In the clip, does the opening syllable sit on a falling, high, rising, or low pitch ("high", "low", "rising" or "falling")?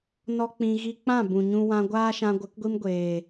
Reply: high